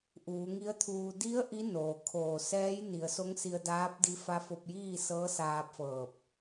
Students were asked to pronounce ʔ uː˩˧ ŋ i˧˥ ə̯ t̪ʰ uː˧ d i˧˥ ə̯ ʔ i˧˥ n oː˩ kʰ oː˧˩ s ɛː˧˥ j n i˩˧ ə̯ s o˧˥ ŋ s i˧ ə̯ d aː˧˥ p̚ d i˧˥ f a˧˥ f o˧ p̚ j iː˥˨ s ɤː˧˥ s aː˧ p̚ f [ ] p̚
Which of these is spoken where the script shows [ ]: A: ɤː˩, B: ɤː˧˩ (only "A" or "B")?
B